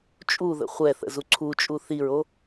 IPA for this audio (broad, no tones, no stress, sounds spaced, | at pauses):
t͡ʃʼ u ð ə̰ χʷ ɛ θ ə̰ z u ǀʰ u t͡ʃʼ u θ i ɹ o